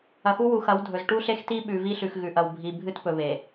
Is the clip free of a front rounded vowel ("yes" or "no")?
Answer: yes